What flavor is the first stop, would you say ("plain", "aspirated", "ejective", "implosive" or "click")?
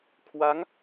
aspirated